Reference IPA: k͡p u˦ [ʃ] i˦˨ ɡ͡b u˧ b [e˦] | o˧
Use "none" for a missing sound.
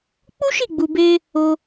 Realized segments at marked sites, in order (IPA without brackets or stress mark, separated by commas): ʃ, e˦